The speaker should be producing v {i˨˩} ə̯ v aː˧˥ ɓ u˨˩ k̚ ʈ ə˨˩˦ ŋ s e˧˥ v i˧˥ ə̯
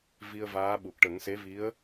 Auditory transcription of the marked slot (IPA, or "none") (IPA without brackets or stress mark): i˧